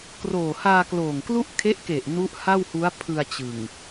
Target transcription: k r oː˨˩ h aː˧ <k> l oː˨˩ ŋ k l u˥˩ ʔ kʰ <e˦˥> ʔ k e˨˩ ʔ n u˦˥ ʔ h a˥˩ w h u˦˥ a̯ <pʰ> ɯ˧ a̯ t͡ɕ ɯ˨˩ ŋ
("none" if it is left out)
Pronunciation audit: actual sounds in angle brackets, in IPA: k, e˦˥, pʰ

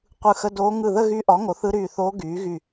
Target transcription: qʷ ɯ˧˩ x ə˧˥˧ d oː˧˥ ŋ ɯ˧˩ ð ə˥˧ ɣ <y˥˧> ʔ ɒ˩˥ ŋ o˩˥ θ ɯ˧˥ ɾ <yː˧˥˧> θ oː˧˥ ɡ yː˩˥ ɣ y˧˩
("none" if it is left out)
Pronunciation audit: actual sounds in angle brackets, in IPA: y˧˥, yː˧˩

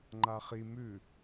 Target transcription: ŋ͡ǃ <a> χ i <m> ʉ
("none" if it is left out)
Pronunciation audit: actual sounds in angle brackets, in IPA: a, m

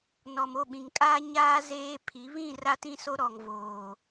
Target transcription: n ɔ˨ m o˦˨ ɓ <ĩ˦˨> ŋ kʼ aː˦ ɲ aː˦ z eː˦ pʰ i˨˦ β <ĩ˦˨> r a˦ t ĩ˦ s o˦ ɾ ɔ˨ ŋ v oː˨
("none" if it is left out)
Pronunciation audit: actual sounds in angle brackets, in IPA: ĩ˨, ĩ˦˨

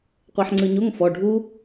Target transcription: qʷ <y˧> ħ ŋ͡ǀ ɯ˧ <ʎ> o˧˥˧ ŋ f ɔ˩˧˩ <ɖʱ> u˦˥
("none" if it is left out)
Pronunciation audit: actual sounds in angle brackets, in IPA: e˧, ɲ, ɖʱ

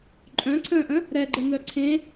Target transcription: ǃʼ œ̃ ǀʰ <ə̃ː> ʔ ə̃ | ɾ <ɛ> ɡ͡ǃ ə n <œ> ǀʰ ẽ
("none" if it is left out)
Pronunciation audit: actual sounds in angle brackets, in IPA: ə̃ː, ɛ, œ

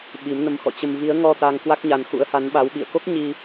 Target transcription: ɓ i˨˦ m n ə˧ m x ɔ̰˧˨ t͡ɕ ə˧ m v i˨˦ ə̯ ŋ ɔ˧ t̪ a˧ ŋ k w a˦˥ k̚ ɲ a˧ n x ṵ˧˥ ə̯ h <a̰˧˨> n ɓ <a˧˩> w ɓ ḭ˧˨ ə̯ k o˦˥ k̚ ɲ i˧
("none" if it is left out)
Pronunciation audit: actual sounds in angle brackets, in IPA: a˨˦, a˨˦

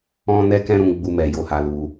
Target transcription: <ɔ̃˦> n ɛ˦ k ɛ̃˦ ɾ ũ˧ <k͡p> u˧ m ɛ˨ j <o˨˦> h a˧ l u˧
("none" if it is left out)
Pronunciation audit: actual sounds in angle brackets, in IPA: ɔ̃˦, ɡ͡b, o˨˦

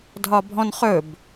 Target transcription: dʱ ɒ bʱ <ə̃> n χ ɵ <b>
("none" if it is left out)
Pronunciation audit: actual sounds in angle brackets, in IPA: ɔ̃, b

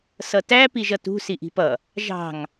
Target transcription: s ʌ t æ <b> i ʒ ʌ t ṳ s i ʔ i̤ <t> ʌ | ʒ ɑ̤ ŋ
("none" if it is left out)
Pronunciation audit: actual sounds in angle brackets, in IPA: p, p

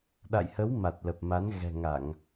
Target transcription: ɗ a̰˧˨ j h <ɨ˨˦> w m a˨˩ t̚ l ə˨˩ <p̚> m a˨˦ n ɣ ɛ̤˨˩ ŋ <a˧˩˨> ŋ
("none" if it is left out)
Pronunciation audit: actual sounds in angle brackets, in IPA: ə˨˦, p̚, a˧˩˨

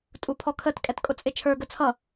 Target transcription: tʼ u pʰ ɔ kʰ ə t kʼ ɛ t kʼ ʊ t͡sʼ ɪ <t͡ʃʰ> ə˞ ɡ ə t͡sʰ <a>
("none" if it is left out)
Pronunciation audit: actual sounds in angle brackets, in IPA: t͡ʃʰ, ʌ

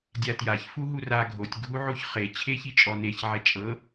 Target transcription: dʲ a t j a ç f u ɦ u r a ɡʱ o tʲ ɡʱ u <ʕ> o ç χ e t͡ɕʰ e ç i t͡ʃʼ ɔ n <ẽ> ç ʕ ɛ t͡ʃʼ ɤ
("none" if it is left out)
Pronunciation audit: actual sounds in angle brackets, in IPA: ʕ, e

